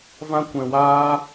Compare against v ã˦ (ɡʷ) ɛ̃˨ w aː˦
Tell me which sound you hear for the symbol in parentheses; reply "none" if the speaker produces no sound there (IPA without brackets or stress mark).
kʷ